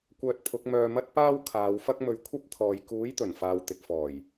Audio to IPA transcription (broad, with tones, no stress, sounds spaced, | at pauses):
kʷ œː˧ t̚ pʰ ʊ˨˥ k̚ m œː˧ m ɐ˥ t̚ p aː˥ w kʰ aː˨˧ w f ɐ˥ k̚ m ɵ˨˧ ɥ kʷʰ ɐ˥ p̚ t̪ʰ ɔː˨ j k uː˨˥ j t̪ ɵ˨˩ n f aː˨ w t̪ ɪ˨ k̚ f ɔː˨˩ j